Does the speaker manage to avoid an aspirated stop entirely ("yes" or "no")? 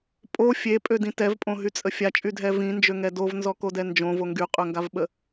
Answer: yes